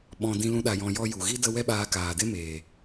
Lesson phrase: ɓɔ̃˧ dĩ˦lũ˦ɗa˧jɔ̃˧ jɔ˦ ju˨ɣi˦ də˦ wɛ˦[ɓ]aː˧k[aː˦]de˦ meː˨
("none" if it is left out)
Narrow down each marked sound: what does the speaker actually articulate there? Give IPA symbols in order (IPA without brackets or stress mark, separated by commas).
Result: ɓ, aː˨